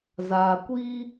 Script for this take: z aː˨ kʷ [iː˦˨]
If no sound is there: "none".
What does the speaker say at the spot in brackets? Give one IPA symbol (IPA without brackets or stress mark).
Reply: iː˦